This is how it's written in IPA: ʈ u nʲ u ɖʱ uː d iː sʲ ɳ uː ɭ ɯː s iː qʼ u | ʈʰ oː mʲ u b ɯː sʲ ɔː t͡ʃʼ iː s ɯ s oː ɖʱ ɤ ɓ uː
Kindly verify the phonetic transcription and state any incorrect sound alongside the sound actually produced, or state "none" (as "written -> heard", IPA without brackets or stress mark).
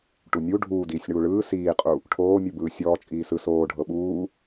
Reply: none